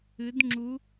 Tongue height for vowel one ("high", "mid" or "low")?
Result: high